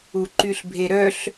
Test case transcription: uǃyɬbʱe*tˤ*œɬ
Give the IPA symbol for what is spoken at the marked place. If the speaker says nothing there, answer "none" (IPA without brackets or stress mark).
ɾ